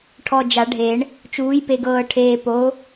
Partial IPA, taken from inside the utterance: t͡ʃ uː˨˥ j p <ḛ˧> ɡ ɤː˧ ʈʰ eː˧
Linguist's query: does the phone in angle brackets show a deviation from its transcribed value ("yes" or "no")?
yes